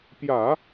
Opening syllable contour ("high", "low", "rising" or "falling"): low